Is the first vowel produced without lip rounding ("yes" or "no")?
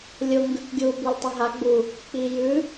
no